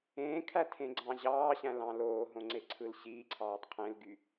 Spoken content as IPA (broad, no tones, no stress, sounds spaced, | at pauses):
ẽː kʰ æ tʰ ẽ ɡ͡ǀ ɑ̃ ʑ ɑː ɕ æ̃ l ɑ̃ l oː ɦ õ ŋ͡ǀ e ǀʰ ɯ l ɕ iː ǀʰ ɑː tˤ qʰ ẽ l ɡ y